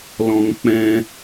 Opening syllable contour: high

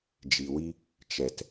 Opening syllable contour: low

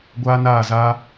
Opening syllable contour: high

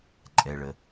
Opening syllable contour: low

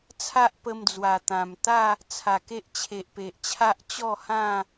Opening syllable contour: high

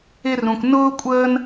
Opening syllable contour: high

